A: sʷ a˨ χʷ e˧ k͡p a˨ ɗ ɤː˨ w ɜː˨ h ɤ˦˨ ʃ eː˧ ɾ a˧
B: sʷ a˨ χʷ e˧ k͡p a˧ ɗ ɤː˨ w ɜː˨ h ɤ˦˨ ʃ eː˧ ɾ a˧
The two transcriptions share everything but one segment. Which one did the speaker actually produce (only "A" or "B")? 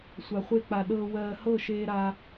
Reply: A